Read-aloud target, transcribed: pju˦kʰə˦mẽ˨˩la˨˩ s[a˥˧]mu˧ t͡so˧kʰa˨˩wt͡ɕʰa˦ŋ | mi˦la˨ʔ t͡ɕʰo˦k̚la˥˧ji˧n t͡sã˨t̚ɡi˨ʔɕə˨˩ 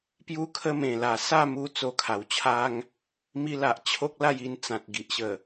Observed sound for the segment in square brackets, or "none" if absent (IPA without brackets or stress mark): a˥˧